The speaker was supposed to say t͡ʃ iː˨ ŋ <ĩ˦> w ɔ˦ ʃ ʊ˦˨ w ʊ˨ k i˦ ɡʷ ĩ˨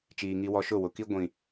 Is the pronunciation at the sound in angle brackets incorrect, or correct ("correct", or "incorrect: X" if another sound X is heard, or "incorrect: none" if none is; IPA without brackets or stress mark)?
incorrect: i˦